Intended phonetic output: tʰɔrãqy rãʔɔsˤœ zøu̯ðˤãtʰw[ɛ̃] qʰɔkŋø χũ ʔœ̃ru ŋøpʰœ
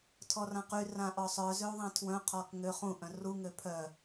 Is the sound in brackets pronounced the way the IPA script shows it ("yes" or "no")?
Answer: no